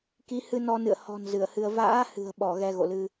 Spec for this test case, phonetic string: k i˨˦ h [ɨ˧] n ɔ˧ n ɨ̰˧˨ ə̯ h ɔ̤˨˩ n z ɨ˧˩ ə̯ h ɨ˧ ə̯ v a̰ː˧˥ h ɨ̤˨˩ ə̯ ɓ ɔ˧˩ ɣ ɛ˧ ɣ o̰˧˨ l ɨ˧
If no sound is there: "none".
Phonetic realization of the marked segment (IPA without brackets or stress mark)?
ɨ˧